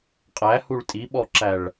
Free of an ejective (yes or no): no